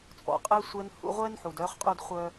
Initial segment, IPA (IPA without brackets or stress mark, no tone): t͡sʼ